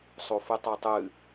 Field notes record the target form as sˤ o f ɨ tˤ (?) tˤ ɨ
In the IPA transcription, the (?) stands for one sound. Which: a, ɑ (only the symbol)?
a